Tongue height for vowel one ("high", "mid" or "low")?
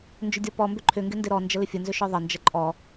high